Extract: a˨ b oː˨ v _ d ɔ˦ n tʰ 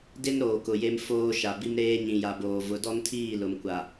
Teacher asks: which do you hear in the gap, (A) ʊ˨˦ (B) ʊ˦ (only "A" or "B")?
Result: A